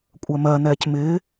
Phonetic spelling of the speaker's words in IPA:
kʷʼɜmɜ n̪ɛːcmɪː

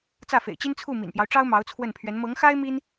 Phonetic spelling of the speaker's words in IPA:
t͡sä˥˩fḛ˨˩ɪ̯t͡ɕi˥nt͡sʰu˥˩ mḭ˨˩npjɑ˦ʊ̯ʈ͡ʂɑ˥ʊ̯ mɑ˧˥ʊ̯t͡sʰwə˥˩npʰɥɛ˧˥n mɤ˧˥ŋxa˥ɪ̯ mi˥n

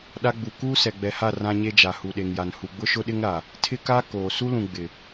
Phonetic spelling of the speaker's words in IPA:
ɗa˦ɡ͡bu˨ kuː˦sɛ˨ɡ͡bɛ˨ha˦˨ rã˦ɲe˦d͡ʒa˨ hu˨ɗe˨ŋja˨n hu˨ɡ͡bʊ˦ʃʊ˦ɗɪ˦ŋ ɾa˨ | tʰɪ˦ka˦ koː˨ su˦lũ˨ ɡ͡bɪ˨

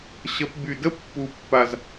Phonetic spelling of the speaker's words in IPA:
ɕə˨˥p by˨˩də˥ pːu˨˩pːa˨˩z

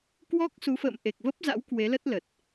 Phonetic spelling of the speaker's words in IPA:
kwɔ˦˥k̚su˨˦ fə̰ː˧˨m ʔe˨˩k̚ və˦˥p̚za̰˧˥w kwe˨˦lə˦˥t̚lə˨˩t̚

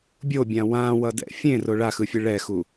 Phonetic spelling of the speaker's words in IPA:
bʲobʲã wãwʌdɛ̰ fʲẽro ɭaxɯfʲɯ ɭɛxu

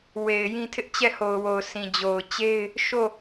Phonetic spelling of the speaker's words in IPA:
we˨ɪ̯jĩ˦ tʰɪ˦ʔt͡ɕɛ˦˨ho˨ʊ̯wo˨ʊ̯ sĩ˨d͡ʑo˨ʊ̯ t͡ɕe˦ɪ̯ | ʃo˦˨

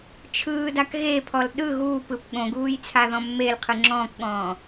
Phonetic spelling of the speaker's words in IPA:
t͡ʃʰɯːdak ɣepʰɔl ɗɯ ɣuːpɯp ɠõɡuːj t͡sʰaðɔ̃mːelqʰɯ ŋ͡ǁɔ̃ːkɠɔ̃ː

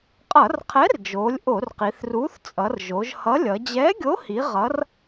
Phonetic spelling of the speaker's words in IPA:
qʼʌ˧˩˧rqʰɛ˨˥rd͡ʒoː˩˧lʲ ʔo˧˩˧rqi˩˧θruː˨˥θ t͡sʼʌ˩˧rʒo˩˧ʒ hʌ˨˥lʲʌ˩˧ d͡ʑɛː˨˥ɡʲo˨˥hi˩˧ ʁʌ˩˧r

